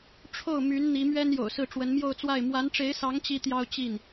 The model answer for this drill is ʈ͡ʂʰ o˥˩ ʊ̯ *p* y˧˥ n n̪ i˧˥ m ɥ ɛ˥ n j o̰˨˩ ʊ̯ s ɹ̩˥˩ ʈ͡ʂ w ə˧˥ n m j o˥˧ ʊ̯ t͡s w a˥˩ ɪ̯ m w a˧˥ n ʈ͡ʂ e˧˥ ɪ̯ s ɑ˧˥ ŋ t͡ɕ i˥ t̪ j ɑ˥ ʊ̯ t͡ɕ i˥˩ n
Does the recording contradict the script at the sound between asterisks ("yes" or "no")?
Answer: yes